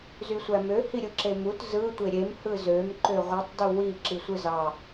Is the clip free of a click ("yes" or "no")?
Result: no